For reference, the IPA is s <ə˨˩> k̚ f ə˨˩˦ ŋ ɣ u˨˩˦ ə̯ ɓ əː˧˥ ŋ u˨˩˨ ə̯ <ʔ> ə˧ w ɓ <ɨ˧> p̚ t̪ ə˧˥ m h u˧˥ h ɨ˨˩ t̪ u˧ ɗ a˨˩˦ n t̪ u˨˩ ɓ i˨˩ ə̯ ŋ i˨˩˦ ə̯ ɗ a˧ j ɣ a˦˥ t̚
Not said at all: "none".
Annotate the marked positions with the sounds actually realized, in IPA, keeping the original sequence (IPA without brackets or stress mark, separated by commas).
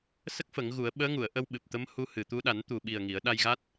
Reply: ə˦˥, ʔ, ɨ˨˩